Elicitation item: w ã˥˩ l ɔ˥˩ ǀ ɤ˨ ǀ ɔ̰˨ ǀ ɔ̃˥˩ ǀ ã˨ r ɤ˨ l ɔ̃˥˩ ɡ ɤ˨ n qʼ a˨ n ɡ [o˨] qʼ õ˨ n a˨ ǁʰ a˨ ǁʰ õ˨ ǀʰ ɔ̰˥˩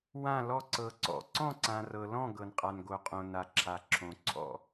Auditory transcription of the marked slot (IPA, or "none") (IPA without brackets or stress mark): o˨